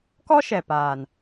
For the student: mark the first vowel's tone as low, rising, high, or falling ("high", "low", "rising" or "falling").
high